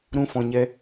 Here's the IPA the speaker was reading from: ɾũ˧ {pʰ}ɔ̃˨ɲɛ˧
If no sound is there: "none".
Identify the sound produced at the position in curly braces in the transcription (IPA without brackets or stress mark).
f